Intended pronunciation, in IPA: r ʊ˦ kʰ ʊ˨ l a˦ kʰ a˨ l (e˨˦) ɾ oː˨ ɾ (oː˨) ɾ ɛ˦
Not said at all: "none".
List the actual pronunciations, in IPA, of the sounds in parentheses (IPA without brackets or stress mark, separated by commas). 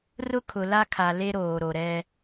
e˦, o˨